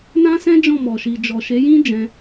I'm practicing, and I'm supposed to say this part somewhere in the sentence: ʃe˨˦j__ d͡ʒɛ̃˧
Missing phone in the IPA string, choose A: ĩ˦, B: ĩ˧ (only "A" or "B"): A